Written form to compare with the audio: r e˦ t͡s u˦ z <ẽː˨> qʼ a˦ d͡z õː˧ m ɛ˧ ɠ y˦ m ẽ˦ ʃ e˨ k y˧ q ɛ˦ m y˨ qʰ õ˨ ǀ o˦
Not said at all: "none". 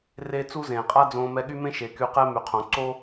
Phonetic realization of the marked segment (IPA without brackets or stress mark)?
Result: ẽː˨